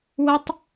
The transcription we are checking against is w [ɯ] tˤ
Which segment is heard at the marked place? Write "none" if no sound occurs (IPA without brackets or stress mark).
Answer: ə